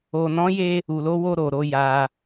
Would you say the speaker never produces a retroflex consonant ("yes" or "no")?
yes